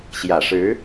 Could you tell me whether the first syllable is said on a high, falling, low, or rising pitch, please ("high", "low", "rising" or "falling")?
low